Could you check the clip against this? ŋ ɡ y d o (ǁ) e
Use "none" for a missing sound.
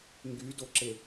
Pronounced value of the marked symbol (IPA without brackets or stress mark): ǁ